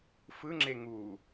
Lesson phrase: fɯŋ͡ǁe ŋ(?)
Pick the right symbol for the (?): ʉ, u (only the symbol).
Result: u